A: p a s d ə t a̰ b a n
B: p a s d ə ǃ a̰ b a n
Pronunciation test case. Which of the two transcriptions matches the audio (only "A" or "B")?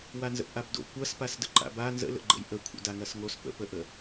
B